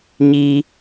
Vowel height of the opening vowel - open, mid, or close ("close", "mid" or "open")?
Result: close